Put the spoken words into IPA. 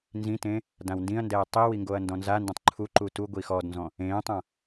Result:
n z ĩ t ẽ | d ã w n d ĩ ɐ̯ n d ɛː tˤ i w i ŋ ɡ o ɐ̯ n d ɔ̃ n z a n d ẽ tˤ ǃʰ u ǃ u t u ɡʷ i x ɔ d n z ɔ̃ | ẽː tˤ ã

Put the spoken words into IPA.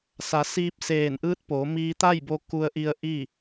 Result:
s a˩˧ s iː˧ p̚ s eː˧˩ n ʔ ɯː˧˥ t̚ p oː˩˧ m iː˧ t̪ a˥˨ j b o˧ k u˧ ə̯ ʔ i˧ ə̯ ʔ i˥˨

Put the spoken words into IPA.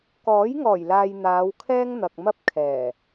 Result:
k ɔː˨˥ j ŋ ɔː˨˩ j l aː˨ j n̪ aː˨˧ w kʰ ɛː˥ ŋ n̪ ɐ˨ k̚ m ɐ˥ p̚ kʰ ɛː˨˩

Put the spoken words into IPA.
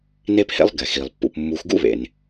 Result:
n e˥ p h ḛ˥ lˠ ɡ ɛ˩ x i˩ lˠ pː ṵ˨ p mː u˨ x ɡ ṵ˥ β ḛ˩ n

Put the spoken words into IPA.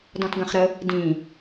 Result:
d ɔ̃ t ɡ ɐ̃ χ ɾ ə | d ĩ

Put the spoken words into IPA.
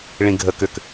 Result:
ɭ ĩ ɡʱ ə k ʏ k

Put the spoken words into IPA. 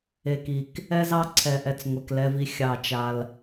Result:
e˨ k i˨ k | ɛ˦ z ɑ˦ ǀʰ ɛ˨ ʔ ɛ˨ t͡s ŋʷ ɛ˨ k l ɛ˦ v i˦ xʲ ɑ˦˨ t͡ʃ a˦ l

